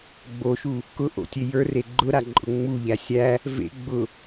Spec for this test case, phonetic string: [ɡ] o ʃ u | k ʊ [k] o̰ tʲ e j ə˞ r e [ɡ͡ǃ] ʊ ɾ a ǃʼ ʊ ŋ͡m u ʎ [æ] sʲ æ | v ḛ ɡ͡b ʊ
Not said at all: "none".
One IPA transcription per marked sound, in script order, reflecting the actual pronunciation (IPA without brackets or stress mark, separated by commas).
ɡ͡b, ʔ, ɡ͡ǃ, æ